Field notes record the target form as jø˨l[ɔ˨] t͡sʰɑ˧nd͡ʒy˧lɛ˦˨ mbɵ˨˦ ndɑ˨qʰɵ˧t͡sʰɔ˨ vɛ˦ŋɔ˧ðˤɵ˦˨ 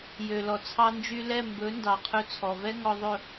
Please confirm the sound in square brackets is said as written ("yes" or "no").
yes